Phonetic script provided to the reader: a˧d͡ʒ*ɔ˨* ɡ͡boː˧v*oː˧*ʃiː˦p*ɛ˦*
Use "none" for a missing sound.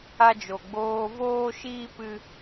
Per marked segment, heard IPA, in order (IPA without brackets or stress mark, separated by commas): o˨, oː˦, ɨ˦